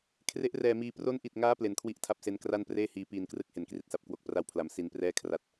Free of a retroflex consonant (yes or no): yes